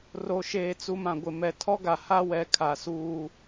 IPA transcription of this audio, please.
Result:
r o˨ ʃ eː˨ t͡s u˨ m ã˨ ɡʷ ɪ˨ m ɛ˨ tʰ ɔ˦ ɡ a˨ h a˦ w ɛ˨ kʰ a˨ s uː˦

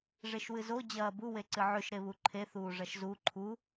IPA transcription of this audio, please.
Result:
ʐ e ʃ w ɨ z o d͡ʑ ɐː b u w e ǀ ɨ ʕ ʉ ʃ ɾ e β u ǃʰ e θ uː ʐ ɐ ʃ z u ǃʰ u

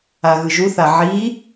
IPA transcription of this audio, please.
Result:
a ɣ ɯ ʒ u θ a ʕ iː

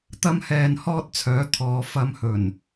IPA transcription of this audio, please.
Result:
t̪ ɐ˥ m h ɛː˧ n h ɔː˥ t̚ t͡sʰ œː˨˥ t̪ʰ ɔː˨˧ f ɐ˧ m h ɵ˨˩ n

